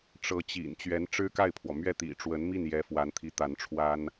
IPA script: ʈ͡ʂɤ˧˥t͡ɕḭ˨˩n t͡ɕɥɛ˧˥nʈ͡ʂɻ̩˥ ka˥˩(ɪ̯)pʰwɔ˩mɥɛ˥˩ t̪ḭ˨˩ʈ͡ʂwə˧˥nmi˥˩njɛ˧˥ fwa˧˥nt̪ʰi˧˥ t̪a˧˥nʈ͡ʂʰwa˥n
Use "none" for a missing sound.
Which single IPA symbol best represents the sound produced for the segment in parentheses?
ɪ̯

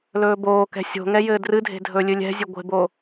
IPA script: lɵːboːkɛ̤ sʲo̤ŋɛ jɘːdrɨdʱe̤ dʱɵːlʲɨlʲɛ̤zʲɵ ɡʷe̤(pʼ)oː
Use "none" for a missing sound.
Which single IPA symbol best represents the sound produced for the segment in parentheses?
b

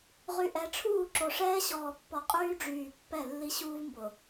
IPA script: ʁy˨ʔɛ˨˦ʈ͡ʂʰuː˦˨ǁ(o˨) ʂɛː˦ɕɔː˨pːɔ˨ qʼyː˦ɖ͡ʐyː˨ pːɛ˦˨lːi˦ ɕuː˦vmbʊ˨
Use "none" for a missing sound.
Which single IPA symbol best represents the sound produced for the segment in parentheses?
o˨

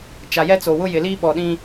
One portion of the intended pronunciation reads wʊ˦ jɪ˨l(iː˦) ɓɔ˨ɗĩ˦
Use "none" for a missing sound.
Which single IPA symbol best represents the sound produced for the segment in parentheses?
iː˦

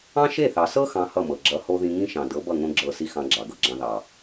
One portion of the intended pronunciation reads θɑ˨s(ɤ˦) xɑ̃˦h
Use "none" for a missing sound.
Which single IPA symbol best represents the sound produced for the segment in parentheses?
ɤ˦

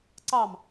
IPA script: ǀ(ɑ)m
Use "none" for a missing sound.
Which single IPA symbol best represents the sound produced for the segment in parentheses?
ɑ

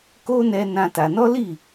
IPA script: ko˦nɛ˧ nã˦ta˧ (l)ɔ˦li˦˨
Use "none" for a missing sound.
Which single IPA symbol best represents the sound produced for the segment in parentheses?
n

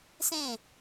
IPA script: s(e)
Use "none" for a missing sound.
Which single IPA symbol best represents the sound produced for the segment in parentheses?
ẽ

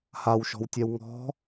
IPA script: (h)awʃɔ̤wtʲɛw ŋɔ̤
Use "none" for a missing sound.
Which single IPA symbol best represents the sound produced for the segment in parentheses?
h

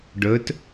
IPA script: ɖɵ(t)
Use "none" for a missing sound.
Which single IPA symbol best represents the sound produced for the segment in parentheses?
t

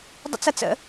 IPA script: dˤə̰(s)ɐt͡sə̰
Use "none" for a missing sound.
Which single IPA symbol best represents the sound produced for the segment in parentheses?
t͡s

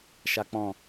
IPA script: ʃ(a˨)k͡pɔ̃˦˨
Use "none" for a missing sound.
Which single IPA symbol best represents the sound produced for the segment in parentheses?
a˦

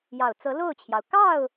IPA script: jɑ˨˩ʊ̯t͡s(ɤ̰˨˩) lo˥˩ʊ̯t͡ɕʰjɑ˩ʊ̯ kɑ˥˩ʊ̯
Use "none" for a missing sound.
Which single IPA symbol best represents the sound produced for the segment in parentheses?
ɤ˧˥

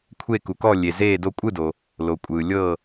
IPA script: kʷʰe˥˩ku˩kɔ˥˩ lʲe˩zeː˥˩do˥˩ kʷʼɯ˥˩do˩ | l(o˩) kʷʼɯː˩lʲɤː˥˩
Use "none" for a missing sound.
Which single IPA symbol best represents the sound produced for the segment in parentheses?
o˩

